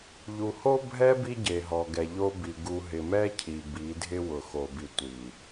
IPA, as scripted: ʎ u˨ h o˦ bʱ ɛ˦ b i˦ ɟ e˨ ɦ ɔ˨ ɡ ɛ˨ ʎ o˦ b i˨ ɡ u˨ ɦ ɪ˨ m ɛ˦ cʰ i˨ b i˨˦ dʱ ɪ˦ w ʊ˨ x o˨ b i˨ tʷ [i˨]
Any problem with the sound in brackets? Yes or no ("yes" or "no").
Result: no